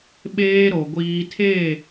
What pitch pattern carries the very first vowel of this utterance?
high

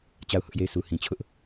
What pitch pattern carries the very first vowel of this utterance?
falling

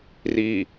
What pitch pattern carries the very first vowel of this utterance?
low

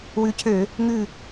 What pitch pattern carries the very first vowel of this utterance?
rising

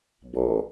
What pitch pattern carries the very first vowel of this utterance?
low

